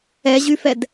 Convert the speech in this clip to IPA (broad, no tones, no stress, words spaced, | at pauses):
ɛʑyfɛd